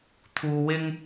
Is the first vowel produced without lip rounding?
no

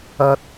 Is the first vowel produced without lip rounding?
yes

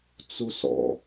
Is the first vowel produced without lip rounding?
no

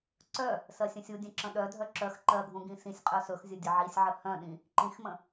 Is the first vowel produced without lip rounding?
no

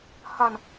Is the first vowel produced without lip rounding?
yes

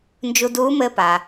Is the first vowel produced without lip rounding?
no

